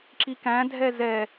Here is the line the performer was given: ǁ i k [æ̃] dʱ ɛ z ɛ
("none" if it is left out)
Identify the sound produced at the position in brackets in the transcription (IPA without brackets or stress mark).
æ̃